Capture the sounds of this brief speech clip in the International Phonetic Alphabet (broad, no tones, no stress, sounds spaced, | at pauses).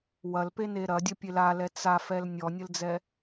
w ɐ l p e n e ɾ ɐ dʲ ɐ pʲ e l a l ɛ t͡s a f ɛ l nʲ ɔ nʲ ə l d͡z ɛ